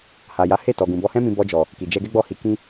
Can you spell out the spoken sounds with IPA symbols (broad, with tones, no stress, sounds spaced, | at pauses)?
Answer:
h a˨ j a˨˦ h e˦˨ t ɔ˨ ɡ ũ˨ b ɔ˧ h ɛ̃˦ m ĩ˧ b ɔ˧ d͡ʒ ɔ˨ | k i˨ d͡ʒ ɛ˧ ɡ ɛ˦ ɡ͡b ɔ˦˨ h i˨˦ k ĩ˦